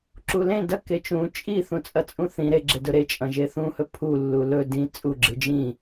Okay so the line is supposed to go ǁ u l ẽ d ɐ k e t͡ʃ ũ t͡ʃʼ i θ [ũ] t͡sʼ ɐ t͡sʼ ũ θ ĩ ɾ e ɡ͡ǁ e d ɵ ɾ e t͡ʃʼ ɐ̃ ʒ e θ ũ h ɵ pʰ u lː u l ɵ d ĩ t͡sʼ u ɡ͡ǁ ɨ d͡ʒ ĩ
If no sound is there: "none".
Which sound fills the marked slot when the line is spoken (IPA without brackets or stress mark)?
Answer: ũ